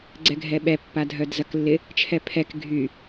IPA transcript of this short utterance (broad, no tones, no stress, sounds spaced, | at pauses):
ɡ͡ǀ ɛ ɡʱ ɛ ɓ ɛ pː a dʱ œ d z ɐ k lː ɪ | t͡ʃʰ ɛ pʰ ɛ k ɡʱ y